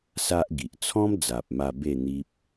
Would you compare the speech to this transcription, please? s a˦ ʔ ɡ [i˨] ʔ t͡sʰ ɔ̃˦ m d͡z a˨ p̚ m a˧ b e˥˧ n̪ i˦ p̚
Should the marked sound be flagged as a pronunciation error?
no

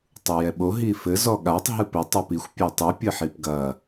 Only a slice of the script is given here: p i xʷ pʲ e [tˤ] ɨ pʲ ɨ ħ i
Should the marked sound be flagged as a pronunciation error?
no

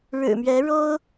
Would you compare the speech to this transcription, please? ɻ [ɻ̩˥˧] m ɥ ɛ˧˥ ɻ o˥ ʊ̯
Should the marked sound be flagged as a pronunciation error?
yes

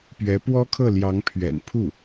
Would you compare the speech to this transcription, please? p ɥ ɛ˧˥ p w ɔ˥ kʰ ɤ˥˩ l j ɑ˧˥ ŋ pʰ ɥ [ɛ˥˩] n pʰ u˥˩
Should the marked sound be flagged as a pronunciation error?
yes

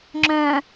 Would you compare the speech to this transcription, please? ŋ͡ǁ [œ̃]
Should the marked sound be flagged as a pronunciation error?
no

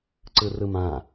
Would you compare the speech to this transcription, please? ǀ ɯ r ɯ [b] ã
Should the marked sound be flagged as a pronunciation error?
yes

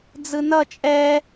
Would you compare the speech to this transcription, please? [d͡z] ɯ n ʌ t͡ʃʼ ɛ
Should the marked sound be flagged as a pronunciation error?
no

